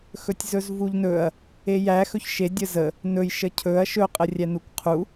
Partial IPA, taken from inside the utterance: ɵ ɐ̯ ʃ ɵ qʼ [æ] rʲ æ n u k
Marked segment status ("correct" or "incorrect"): incorrect